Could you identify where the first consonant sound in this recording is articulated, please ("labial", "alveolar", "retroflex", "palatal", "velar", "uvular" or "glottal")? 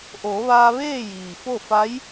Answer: glottal